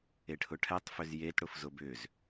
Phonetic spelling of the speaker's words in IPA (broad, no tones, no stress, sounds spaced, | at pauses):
e ʈʰ ʊ ʈʰ ɛ tˤ f ʏ z j e t ɽ ʊ f z ʊ b ʏ z